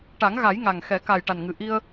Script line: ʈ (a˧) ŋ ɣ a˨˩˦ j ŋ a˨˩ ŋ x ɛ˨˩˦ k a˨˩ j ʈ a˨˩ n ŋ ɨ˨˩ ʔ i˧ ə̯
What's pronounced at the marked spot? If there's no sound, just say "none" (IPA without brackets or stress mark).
a˨˩˦